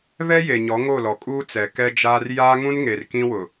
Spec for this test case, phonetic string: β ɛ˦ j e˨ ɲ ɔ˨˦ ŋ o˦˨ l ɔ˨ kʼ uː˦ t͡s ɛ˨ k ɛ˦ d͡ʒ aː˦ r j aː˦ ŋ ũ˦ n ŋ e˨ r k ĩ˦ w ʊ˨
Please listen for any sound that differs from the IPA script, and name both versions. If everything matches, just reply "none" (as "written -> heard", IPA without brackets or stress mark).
none